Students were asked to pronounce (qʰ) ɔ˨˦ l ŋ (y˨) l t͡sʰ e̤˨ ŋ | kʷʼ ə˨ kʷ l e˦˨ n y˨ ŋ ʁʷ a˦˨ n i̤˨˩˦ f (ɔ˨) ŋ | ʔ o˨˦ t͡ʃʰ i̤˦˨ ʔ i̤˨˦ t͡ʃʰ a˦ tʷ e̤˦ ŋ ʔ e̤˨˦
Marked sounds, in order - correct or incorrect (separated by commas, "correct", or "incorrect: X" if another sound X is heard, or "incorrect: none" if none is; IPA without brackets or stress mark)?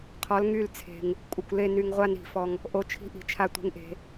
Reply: correct, incorrect: y˦˨, correct